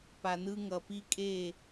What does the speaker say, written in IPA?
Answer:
pa˨nɯ˦ ŋʌ˨pi˦kʼe˦˨

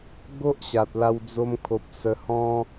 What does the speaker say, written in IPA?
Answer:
ɡo˦ʔ ɕa˨t̚la˧wd͡zo˧mkʰo˨p̚ sə˧hɔ̃˦

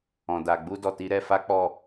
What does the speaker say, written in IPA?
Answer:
ɔ̃˨da˨ ɡ͡bu˧ dɔ˨ti˨˦ɾɛ˧fa˦ k͡pɔ˦˨

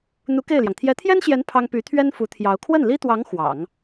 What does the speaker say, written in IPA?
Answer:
n̪u˧˥ ke˥˩ɪ̯ljɑ˩ŋ t̪ʰjɛ˧˥t̪ʰjɛ˥nɕjɛ˧˥n pʰɑ˥ŋ py˧˥t̪ʰɥɛ˥n fu˧˥t̪ʰjɑ˧˥ʊ̯ kʰwə˥˩nli˥t̪wɑ˧˥ŋ xwɑ̰˨˩˦ŋ

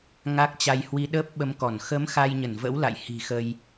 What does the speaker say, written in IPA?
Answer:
ŋa˦˥k̚t͡ɕa˧jhwi˧ ɗəː˦˥p̚ɓə˧mkɔ˧˩n xə˨˦m xa˧jɲə˧˩nvə̰˧˥w la̰˧˨j hi̤˨˩xə˧j

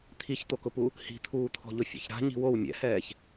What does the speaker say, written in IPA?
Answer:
t̪ʰiçt̪okʊpu | hi̤t̪ʰuːt̪ʰɔ̤ʎʊ fʲɛ̰çɾa̤ ɲi̤wow mʲɛ̰hɛːç

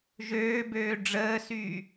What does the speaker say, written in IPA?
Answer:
ʒøːbøː ɖ͡ʐəːsyː

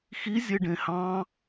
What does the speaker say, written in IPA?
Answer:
xi zʲeɖẽhɑ̃

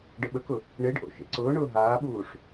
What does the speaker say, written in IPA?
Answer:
ɖəɓəkʊ | ɳeɖʔo̰ ʃḛǀʊːɳʊː ɦaːɓuːʂ

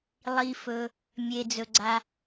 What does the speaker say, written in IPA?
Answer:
lˠi˩fɵ˩ | mʲe˩d͡zɵ˩ɡ͡ǀa˩

